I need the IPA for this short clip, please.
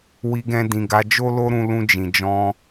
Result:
wi˧ ɡɛ̃˧dĩ˨ɡa˨˦ d͡ʒo˦lo˦ɾũ˧ lũ˧d͡ʒĩ˨d͡ʒɔ̃˧

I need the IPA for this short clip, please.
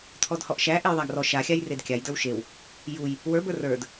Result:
t̪ʰɔdhɔʔʃæ ʔejðˤaɡrɔ ʃaxʲaj redkʲajdə˞w ʃew | juj | wə˞bə˞ rə˞d

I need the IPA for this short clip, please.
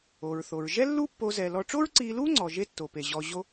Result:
o˩ɹθo˩ɹ ʒɛ˥lːu˥pːo˧ zɛ˩ lɔ˧ ʈ͡ʂo˥ɹǀiː˧luː˥ŋ͡ǀɔ˩ ʒe˥ tːo˩pe˩ʑɔ˧ ʑo˥

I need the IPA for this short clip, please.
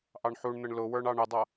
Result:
ʔɑɳħuɳn̪əɳ lʊwə˞ɳ ɑɳɪdˤʌ

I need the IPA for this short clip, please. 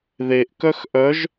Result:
ðeʔ kœxʔœʒ

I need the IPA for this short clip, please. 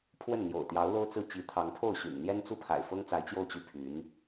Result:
pʰwə˥˩nn̪jo̰˨˩ʊ̯t̪jɑ˧˥ʊ̯ lo˥ʊ̯t͡sɹ̩˥˩ t͡ɕi˧˥t̪ʰɑ˧˥ŋpʰo˥˩ʊ̯ ɕy̰˨˩nn̪jɛ˥nt͡su˥˩ pʰa̰˨˩ɪ̯fɤ˥ŋt͡sa˧˥ɪ̯ t͡ɕjo˥˩ʊ̯t͡ɕy˥pʰy˧˥n

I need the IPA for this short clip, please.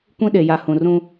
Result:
kʷĩ˦ɗe˨ja˨ hũ˨rũ˦

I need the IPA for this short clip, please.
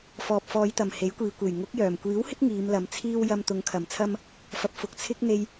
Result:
fɔː˨p̚fɔː˨˧jt̪ɐ˨˩m he˨˥jkʷiː˨kʷe˨˩j ŋʊ˨˥k̚jœː˨˩m kʷiː˨˥whɪ˥k̚ ŋiː˨˧mlɐ˨˧mt͡sʰiː˥w jɐ˧mt̪ʊ˨˧ŋkʰɐ˨˩m t͡sʰɐ˥m | fɐ˨p̚fʊ˨k̚ t͡sʰɪ˥k̚ n̪e˧j

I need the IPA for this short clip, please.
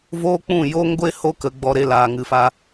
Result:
voː˦k͡pũ˦˨ jo˦ŋɡʷe˦ ho˦kə˧ɡ͡bɔ˧ ɾe˧laː˨ ŋɨ˨fa˧

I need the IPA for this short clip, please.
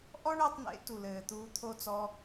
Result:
ʔɔ˦ɳəː˧tˤn̪ḛ˨˦ tu˨lɘː˨t̪uː˧ t̪ʰo˦t͡sɔ˦

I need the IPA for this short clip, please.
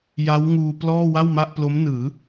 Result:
ja˦˥wŋuː˧plɔː˥˩ wa˥˩wma˥˩ʔplo˦˥mnɯː˩˦

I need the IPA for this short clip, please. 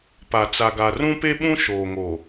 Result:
pa˨ t͡sa˨ɡa˨ rũ˦pe˦ɓũ˦ ʃoː˨ŋo˨

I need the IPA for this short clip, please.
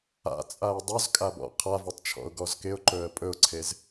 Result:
a̰t͡sʼaɪ̯ dˤɵzkʼabɔ̰ qʰavɔtˤt͡ʃʰɔ̰ʊ̯ɡɔz kɪʊ̯ǃɵə̯ pʼɵʊ̯ǀʰez

